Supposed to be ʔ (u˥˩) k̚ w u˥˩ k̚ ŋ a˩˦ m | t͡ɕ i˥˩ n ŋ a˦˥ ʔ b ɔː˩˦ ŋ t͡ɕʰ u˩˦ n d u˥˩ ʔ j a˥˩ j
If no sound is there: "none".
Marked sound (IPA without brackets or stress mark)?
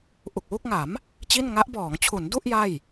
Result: u˨˩